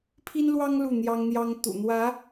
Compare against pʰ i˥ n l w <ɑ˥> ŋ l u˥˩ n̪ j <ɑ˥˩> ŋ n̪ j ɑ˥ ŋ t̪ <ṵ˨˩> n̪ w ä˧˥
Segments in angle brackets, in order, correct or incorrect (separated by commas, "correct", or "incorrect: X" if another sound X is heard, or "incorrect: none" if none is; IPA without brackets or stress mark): correct, incorrect: ɑ˥, correct